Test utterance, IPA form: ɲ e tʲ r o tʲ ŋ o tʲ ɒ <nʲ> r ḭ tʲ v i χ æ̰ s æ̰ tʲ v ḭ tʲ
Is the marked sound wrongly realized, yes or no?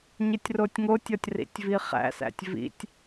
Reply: yes